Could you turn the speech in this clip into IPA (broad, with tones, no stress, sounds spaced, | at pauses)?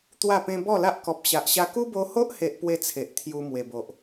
t̪ w a˥˧ p ẽ˦ b ɔ˥˧ l a˦ ʔ k ɔ˨ p̚ ɕ a˨ ʔ ɕ a˧ k u˦ b o˧ h o˦ ʔ h e˦ ʔ p w e˥˧ t͡sʰ e˨ ʔ t̪ʰ j u˧ m w e˨˩ b o˨ ʔ